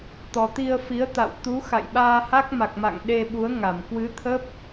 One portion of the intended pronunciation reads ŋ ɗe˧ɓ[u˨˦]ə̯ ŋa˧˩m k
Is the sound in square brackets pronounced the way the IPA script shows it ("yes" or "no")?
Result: yes